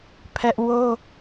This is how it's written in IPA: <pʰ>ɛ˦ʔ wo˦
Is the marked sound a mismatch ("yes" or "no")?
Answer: no